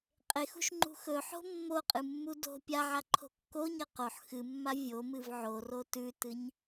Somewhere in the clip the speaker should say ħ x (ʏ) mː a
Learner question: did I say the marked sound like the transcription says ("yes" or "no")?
no